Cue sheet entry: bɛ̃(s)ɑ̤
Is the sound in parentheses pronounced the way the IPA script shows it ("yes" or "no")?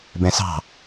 yes